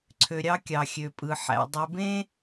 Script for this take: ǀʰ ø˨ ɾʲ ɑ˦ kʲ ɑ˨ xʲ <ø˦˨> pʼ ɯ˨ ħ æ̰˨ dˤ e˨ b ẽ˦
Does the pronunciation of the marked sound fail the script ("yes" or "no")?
yes